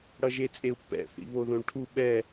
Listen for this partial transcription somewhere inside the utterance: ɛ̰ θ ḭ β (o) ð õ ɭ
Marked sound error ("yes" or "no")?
no